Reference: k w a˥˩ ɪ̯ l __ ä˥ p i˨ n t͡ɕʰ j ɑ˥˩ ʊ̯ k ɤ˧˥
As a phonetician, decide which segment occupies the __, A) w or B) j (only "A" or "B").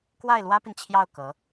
A